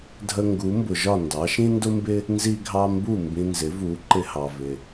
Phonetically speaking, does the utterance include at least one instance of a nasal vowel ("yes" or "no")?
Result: yes